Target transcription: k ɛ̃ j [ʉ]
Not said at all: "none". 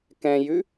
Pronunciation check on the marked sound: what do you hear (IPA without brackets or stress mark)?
ʉ